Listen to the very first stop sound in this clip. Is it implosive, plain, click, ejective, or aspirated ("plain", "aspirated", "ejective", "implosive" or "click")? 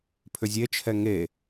aspirated